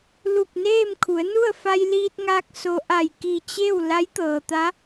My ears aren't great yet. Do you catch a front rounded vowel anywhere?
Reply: no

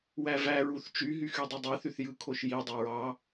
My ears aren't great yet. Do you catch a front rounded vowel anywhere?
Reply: yes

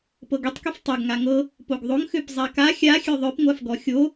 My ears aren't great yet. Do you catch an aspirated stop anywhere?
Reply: no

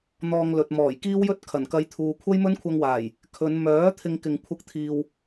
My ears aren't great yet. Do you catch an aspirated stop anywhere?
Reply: yes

